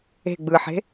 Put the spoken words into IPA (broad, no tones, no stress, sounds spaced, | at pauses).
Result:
e̤ ɡ͡b ɯ ħ e̤